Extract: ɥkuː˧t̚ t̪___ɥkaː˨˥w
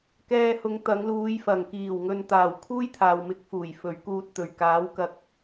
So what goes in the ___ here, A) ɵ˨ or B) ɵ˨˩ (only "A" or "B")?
B